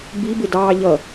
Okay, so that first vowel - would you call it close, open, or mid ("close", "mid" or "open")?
close